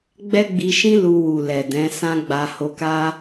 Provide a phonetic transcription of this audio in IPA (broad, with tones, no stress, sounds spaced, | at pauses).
ɡ͡b ɛ˦ ɡ͡b i˧ ʃ ĩ˦ l u˧ w u˨ l ɛ˨ d ɛ̃˨˦ s ã˦ ɡ͡b a˧ h o˧ k a˦